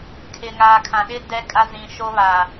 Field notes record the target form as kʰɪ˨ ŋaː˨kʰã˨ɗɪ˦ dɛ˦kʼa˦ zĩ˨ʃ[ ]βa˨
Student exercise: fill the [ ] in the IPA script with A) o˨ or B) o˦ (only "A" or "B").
B